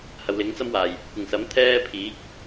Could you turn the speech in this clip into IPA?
hɐ˨wlɪ˨˥ŋt͡sɐ˥mwaː˨˩j | kʷɪ˨˩ŋsɐ˨˥m t̪ʰɛː˥pʰiː˨˥k̚

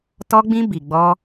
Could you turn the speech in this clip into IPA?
tɔ˧ɡ͡bĩ˧ bi˨ɡ͡bɔ˧

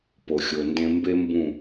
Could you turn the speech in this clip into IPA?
po˨xʲo˨ndẽ˦ mbe˦mbũ˦˨

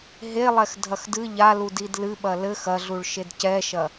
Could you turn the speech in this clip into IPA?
ɦelˠɛx dʱɐxdɨ ʎalu didlɨɓɐ lɘx ɐɮuɭʃed cɛʃɐ

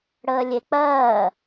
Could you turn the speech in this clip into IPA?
ɽəːlʲek͡pɜː

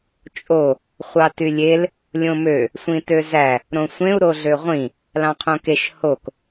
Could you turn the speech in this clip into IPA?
t͡ʃʼo | χʷɑtylʲel | lʲõmø | sʷĩtøzæ | ɾõsʷẽu̯ ɾoɮøʁʷĩ | lɑ̃qʰõkeʃ hok

